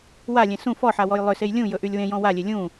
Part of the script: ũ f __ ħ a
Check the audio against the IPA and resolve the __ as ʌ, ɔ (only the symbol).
ɔ